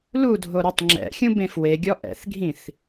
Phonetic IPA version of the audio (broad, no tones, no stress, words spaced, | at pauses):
ludʱo ɾotˤŋ͡ǁɛ̰xʲũ bẽfweɡʲɔ ʔɛ̰θɡʱĩθ